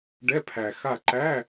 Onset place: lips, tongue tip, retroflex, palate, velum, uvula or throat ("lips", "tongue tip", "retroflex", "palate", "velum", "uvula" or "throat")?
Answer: retroflex